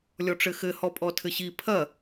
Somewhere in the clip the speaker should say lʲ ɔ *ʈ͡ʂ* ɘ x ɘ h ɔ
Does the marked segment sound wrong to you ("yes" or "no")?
no